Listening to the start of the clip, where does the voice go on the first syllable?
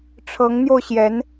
rising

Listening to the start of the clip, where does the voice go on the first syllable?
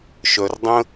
low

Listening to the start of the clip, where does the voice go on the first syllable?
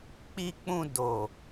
low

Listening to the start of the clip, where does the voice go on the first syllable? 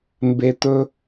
low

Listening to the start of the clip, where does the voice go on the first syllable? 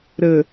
low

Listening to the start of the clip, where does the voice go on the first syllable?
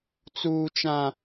high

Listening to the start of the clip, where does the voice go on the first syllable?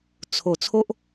low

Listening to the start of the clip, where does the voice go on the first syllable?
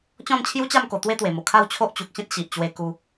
falling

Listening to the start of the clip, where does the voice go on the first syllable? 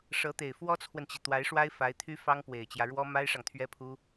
rising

